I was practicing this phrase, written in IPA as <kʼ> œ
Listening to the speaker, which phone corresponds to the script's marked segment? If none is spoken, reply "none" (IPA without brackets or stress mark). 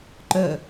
ǃ